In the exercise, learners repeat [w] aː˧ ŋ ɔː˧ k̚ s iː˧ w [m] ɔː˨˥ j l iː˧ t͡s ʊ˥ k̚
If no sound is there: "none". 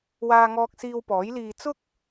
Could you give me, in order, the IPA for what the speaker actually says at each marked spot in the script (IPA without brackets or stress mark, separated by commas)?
w, p